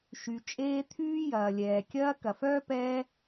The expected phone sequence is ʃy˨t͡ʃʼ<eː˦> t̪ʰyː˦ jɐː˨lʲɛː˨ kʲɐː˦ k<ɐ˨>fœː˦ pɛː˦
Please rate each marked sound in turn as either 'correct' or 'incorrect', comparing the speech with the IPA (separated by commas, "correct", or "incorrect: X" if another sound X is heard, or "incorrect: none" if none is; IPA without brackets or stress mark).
correct, correct